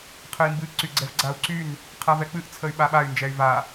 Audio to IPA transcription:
qʰ ə i̯ m b ɨ ǀ y ɡ͡ǀ ɛ v ɡ͡ǀ a u̯ ǀ y n | qʰ a v ɛ k͡p ɨ ʔ t͡sʰ ə y̯ ɓ a ɓ a y̯ n d͡ʒ ɛ y̯ v a

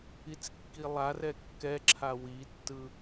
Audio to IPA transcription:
i t͡s kː i lˠ a r ɛ kː ɛ ǁʰ a w i tː ɯ

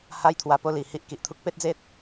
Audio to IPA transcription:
h a˦ j t̪ʰ w a˧ p o˥˧ l i˨˩ h i˦ ʔ k i˨ ʔ t̪ʰ u˦ k̚ p e˦ t̚ d͡z e˦ t̚

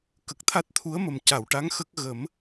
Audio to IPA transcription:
k ə˨˩ k̚ t̪ʰ a˦˥ t̚ t̪ʰ u˧˥ ə̯ m ə˨˩ m c a˨˩˨ w ʈ a˧˥ ŋ x ə˦˥ k̚ ɣ ə˨˩˦ m

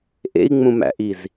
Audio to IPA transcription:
ʔ ḛ i̯ ŋ͡m ũ m æ̰ ʔ i z

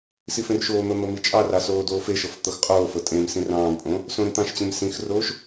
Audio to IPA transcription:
s i f ẽ r ʃ oː n̪ ɤ n̪ ɤ m i t͡ʃʼ ɑ r ɑ s oː d oː f e ʃ ɤ f t̪ ɤ x qʼ oː f ɤ tʼ ẽ m s ĩ r ɑ̃ː m pʼ õ | s õ ɾ ĩ t̪ ɑ̃ ʃ t͡ɕ ẽ m s ĩ x r oː ʃ

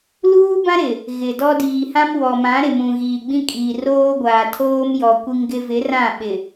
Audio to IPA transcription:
l uː˦ b ã˦ ɾ ɪ˨ | ɣ ɪ˨ d ɔ˦ d iː˨ h ã˦ m w ɔ˨ m ã˨˦ ɾ ɪ˨ m ũ˨ ɣ iː˨ ɡ͡b ĩ˦ kʼ iː˨ r oː˦ ɡʷ aː˨ tʰ oː˦ m j ɔ˨ kʷ i˦ ŋ ɡ ɪ˦ v ɪ˨˦ r ã˦˨ ɓ ɪ˨

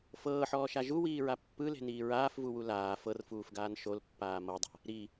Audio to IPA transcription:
f ɤː ħ ɔː ʃ a ʒ u w iː ɹ a pː ɯ l e̤ n iː ɹ aː f v u w u l aː f ɤ r f uː f ɡ aː n ʃ o l pː aː m ɤ dˤ a̤ | ɾ i

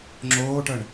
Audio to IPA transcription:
ŋ͡ǁ oː ʈ ə ɳ

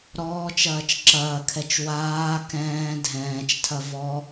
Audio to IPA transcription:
ɾ ɔː t͡ʃ ɐː t͡ʃ ǁ ɐː kʰ ɛ t͡ʃ w aː k ɛ̃ː dʱ ɛ̃ː t͡ʃ tʰ ɐ v ɔ

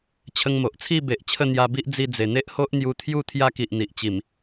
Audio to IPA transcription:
t͡ɕʰ ə˧ ŋ m o˨ ʔ t͡sʰ i˥˧ b e˨ ʔ t͡ɕʰ ə˥˧ n̪ j a˧ b i˦ ʔ d͡z i˧ d͡z e˨˩ n̪ e˦ ʔ h o˦ ʔ n̪ j u˧ t̪ʰ j u˥˧ t̪ʰ j a˦ k i˨ ʔ n̪ i˨ ʔ t͡ɕ i˨˩ m

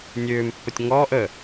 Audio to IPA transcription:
nʲ øː m pː ə tʲ ŋ ɔː ʔ ə

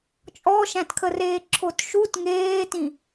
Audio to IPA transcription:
t͡ʃʼ ɔ ʃ æ̃ t kʰ ə r eː ǁʰ o t ʃ u t ŋ eː t ĩ

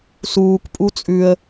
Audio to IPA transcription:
s uː k pʼ u t͡sʼ ʉ ə̯

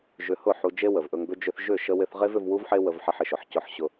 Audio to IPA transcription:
ʒ ʏ˧ h ʊ˦˨ ħ u˧ d͡ʒ e˦ w ə˨ v ʔ ɵ˧ ŋ b ʏ˦ d͡ʒ ʏ˦ θ ʒ ʏ˦˨ ʃ ə˧ w ɪ˧ θ ʁ e˦ v ʏ˧ v w u˦ v ħ e˦ w ə˧ v ħ ɪ˧ ħ ɪ˨ ʃ ʊ˨ ħ c ʊ˧ ħ ɕ ʊ˧

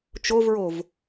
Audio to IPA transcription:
t͡ʃ o v ɹ o v

